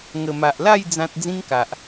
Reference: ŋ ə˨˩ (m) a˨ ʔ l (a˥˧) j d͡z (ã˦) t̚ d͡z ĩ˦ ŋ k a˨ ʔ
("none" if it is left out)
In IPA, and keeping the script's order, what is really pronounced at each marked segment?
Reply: m, a˥˧, ã˦

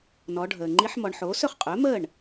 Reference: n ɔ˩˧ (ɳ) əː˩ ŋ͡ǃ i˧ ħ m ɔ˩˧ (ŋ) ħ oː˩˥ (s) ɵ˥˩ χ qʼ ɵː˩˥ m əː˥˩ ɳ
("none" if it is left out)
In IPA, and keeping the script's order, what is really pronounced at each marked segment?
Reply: ɖʱ, ɳ, s

